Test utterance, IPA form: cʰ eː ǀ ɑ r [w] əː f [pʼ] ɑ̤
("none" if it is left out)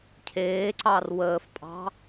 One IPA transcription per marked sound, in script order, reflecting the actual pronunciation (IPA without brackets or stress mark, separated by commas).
w, pʼ